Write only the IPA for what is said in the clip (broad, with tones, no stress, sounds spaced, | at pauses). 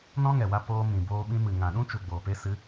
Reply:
n ɔ̃˦ ŋ ɛ˨ w a˧ p oː˧ m ĩ˨ b oː˧ ɓ ĩ˧ m ɨ˨ ŋ ã˨ ɗ ũ˦ t͡ʃ u˨ ɡ͡b oː˨ p e˧ s ɨ˨˦